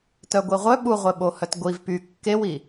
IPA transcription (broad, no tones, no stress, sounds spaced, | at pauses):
t œ ɡʷ i ʁʷ œ ɓ u ʁʷ e ɓ o h œ t ɡʷ i v p y kː e w i